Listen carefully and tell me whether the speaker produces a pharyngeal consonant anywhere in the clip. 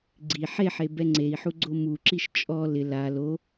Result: yes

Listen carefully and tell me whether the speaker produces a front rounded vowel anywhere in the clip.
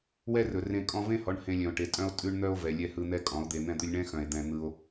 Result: yes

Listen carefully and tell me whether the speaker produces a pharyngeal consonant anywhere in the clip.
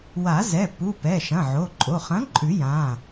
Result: yes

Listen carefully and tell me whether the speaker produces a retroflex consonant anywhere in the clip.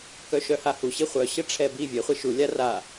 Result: yes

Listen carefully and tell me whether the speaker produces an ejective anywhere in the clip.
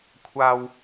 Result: no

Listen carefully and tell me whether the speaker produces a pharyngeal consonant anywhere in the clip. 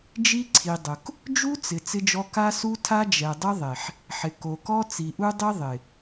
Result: yes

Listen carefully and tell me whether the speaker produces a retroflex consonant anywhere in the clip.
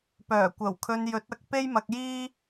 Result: no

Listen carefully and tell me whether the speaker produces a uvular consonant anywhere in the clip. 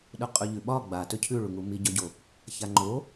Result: yes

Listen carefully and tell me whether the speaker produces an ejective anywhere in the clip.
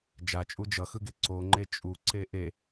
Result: yes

